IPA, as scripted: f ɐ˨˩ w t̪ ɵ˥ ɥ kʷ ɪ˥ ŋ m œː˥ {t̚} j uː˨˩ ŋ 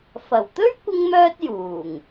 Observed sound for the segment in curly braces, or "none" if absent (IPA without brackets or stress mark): t̚